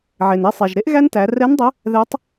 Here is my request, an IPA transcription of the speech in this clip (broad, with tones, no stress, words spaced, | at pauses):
ʕe˩ne˧sˤe˩ʒɾe˥ʔ ɣæ˥ntæ˩˧ rɛ˧˥ndˤə˧˥ | ðɛ˧˥tˤ